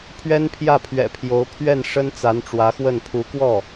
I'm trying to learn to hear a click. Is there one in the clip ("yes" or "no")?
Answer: no